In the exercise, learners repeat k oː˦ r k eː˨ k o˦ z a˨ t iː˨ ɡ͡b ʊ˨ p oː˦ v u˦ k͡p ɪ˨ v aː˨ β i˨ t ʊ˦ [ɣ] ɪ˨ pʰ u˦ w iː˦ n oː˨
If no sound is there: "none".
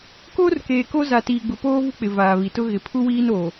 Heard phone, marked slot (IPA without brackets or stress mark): ɣ